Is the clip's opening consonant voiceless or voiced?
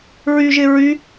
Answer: voiced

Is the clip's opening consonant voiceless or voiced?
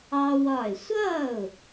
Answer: voiced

